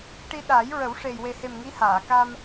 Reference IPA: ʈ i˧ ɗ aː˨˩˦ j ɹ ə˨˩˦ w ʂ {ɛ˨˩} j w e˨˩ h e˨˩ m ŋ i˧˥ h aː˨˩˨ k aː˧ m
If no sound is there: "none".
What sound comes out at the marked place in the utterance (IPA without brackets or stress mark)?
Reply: e˨˩